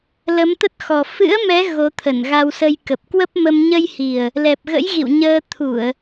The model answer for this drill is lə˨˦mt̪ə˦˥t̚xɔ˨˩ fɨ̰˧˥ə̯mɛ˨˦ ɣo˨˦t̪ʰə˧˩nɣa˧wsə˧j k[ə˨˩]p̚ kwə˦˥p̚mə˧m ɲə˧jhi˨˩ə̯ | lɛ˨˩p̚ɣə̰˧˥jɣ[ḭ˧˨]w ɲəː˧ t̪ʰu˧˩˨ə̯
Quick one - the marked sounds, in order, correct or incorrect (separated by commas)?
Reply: correct, correct